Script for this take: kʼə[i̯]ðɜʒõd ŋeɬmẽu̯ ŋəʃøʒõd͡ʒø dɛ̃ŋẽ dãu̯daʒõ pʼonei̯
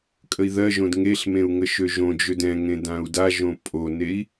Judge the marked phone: correct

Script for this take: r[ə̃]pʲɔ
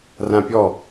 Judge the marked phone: incorrect: ã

